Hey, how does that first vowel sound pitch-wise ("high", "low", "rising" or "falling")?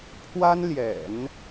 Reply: high